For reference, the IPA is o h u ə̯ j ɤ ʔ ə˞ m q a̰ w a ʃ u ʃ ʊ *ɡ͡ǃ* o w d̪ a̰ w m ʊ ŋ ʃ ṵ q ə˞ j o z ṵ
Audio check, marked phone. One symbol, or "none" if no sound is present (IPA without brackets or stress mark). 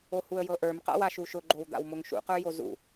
ɡ͡ǃ